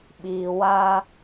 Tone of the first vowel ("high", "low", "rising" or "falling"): low